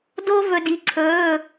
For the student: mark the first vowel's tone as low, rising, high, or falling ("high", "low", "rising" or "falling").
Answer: high